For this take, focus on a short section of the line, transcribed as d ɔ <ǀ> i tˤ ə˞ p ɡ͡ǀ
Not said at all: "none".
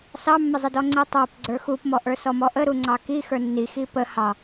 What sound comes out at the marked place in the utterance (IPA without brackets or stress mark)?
ŋ͡ǀ